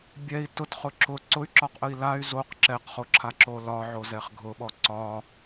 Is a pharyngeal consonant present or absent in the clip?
present